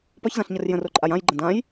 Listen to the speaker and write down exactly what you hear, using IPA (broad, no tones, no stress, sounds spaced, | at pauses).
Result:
p ɒ ç z ã ɬ ɲ ə r j ə̃ r o ǃʼ a j ã j ɡ͡ǃ ə̃ d ã j